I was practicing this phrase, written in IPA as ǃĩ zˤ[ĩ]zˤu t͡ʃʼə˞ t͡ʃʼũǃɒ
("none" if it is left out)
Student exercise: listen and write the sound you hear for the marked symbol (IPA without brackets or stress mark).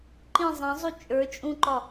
ẽ